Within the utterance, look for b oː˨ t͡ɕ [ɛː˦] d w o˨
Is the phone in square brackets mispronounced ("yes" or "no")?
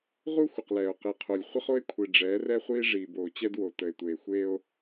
yes